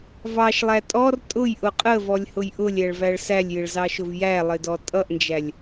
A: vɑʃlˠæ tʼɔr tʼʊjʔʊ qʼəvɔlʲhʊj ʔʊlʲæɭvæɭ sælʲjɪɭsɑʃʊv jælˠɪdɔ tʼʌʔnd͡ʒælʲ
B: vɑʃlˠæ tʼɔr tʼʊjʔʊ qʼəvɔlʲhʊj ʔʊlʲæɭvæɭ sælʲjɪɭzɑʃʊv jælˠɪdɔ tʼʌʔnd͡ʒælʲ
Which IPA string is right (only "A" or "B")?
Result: B